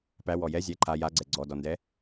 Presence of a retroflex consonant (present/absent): absent